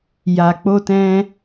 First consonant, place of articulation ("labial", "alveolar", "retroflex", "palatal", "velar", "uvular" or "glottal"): palatal